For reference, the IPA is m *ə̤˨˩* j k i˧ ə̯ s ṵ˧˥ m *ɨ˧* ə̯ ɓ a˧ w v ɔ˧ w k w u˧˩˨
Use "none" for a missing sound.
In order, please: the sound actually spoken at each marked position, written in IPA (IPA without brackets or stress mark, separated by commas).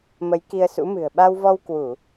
ə˨˦, ɨ̤˨˩